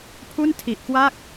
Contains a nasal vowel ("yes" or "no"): no